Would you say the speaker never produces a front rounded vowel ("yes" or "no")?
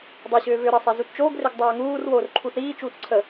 no